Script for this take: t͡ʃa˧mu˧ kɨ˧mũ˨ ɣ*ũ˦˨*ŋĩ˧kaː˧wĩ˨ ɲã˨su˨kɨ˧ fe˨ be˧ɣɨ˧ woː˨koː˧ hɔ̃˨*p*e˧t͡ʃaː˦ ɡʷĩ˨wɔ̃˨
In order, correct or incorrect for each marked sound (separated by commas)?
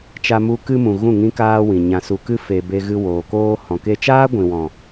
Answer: correct, incorrect